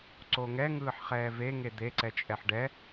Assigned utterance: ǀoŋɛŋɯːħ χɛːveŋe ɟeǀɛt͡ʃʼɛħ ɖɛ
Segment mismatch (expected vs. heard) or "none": ɟ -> d̪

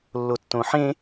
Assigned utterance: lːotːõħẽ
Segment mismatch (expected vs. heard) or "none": none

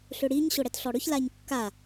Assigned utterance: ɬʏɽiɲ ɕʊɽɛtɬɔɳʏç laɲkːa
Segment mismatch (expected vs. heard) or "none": ɳ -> ɽ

